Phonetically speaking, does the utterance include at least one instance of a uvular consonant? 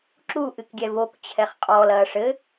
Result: yes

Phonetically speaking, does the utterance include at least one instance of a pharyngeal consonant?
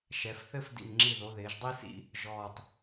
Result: no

